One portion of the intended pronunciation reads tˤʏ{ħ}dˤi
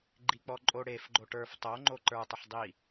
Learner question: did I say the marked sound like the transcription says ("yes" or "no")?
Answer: yes